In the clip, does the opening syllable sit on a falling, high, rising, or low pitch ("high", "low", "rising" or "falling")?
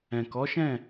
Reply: low